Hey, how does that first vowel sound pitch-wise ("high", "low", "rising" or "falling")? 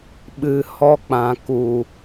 low